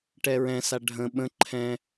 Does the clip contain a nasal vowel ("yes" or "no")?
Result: yes